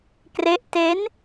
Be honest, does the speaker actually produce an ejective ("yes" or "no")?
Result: no